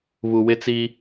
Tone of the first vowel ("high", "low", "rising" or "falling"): low